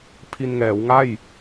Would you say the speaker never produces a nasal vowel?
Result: yes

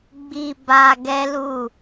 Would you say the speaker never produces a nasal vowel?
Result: yes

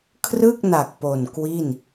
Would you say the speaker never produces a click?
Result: yes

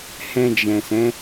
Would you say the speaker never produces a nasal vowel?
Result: no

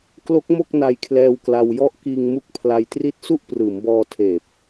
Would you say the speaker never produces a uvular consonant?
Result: yes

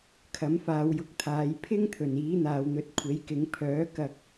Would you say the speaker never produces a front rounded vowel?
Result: no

